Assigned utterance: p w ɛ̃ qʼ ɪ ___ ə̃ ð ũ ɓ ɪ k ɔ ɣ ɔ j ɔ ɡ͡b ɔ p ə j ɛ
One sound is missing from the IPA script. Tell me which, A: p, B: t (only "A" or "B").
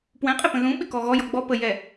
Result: A